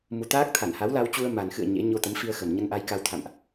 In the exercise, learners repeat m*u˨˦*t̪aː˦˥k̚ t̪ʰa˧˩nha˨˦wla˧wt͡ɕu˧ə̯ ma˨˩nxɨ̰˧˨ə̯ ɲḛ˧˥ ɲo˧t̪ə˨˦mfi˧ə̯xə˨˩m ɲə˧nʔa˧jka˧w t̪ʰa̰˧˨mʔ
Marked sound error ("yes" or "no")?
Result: no